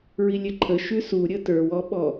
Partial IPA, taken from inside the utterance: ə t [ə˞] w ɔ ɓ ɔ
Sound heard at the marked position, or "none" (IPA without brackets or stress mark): ə˞